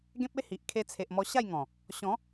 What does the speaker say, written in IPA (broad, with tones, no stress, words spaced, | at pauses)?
ɡẽ˦p̚e˦hi˨ʔ kʰe˧t͡sʰe˨ʔmɔ˧ ɕa˥˧jŋɔ̃˨˩ | ɕɔ̃˨˦